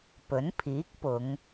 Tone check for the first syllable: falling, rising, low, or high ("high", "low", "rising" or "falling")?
rising